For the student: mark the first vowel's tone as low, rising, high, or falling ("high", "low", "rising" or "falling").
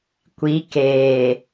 rising